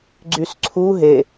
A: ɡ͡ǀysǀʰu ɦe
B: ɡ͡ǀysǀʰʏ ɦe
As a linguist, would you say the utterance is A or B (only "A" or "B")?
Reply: A